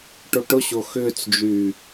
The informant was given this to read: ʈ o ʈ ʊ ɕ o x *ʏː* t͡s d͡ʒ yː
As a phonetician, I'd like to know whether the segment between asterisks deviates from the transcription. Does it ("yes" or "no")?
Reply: no